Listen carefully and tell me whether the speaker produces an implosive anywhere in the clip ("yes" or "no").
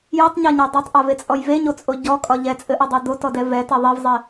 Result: no